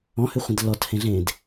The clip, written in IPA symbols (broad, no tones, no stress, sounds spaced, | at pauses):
ɔ̃ h ʏ χʷ ə̃ d l ɔ t h ẽ ɮ ẽ d